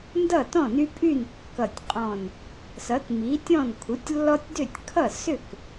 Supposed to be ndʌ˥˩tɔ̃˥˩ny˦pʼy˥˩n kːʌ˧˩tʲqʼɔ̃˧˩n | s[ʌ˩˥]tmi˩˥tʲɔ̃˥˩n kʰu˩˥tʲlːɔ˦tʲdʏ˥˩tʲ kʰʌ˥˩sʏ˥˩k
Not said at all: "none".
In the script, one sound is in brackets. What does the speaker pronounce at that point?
ʌ˩˥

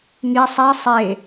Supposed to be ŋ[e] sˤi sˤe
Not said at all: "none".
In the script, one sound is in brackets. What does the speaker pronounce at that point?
i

